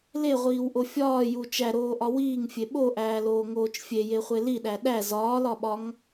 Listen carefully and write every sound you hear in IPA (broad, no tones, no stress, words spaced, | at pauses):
leʁʷiːwʔo fʲɒːju t͡ʃæɾoːʔɒ wiːŋfʲe ɓoʔæːloːŋoːt͡ʃ fʲejeχʷe liɗæ ɗæ zɒːlɒɓɒŋ